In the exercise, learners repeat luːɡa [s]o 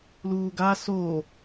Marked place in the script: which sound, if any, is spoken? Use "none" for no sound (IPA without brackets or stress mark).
s